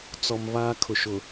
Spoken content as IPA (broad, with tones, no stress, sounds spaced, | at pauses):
t͡s ɔ˨ m β aː˦ kʰ ʊ˨ ʃ ʊ˨